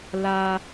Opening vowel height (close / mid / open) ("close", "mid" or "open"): open